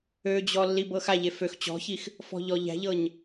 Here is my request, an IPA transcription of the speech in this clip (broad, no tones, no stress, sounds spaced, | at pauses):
ø d͡ʑ ɔ lː i b ɤ x a ʎ e f ø x t͡ɕ ɔ̤ ç i x | f ɔ̤ ʎ ɔ ʎ æ̤ ʎ ɤ ɲ